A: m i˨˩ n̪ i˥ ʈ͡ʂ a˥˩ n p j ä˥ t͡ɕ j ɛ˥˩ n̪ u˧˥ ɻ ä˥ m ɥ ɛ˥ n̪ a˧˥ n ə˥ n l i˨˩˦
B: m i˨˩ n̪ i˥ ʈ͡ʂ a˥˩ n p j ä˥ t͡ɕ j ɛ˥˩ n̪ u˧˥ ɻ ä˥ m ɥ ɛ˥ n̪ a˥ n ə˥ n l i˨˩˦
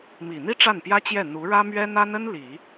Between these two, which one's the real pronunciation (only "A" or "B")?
B